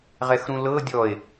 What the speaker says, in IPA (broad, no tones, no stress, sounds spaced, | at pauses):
ʁ ɛ x ɾ ũ l ɤ dʲ ɔ e̯